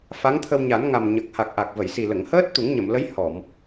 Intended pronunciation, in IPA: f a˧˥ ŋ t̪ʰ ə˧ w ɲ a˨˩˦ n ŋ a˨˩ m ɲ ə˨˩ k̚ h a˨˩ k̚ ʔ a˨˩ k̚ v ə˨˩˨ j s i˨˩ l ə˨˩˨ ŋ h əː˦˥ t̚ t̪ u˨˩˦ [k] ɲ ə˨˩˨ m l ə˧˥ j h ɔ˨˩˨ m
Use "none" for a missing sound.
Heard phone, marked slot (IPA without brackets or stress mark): ŋ